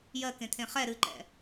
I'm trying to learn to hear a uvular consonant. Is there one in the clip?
yes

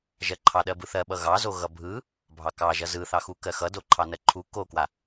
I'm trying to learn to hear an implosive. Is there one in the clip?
yes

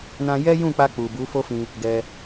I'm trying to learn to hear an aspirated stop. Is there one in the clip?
no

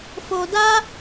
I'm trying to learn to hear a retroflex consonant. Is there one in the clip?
no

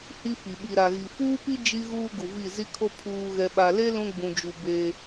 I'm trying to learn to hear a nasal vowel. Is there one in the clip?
yes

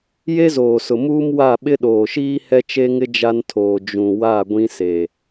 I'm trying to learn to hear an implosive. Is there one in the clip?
yes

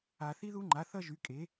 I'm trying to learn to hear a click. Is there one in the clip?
yes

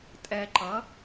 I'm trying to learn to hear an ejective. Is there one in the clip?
yes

